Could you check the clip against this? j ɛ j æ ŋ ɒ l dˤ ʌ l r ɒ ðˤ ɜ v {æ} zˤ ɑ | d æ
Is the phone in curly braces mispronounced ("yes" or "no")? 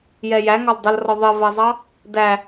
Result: yes